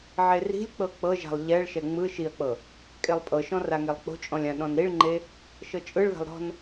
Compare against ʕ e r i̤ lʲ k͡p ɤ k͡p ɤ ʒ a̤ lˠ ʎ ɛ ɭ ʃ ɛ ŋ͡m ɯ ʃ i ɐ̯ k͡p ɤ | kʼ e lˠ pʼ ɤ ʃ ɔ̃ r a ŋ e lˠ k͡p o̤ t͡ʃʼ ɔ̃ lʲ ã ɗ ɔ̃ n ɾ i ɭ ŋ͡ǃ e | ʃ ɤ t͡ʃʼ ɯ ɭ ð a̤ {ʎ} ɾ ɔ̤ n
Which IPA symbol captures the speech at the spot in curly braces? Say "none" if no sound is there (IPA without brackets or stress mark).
lˠ